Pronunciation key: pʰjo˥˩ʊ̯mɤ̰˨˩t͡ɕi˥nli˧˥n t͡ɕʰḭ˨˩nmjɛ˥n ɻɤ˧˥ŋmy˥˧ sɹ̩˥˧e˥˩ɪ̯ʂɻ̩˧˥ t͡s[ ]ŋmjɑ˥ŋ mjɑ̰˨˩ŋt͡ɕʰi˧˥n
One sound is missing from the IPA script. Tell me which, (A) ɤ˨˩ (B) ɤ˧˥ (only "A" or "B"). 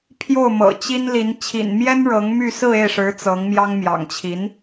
B